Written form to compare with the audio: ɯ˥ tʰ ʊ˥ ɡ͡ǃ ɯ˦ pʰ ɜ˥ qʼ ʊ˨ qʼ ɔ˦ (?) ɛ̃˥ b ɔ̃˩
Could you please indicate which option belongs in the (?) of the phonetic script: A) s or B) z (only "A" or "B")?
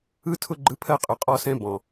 A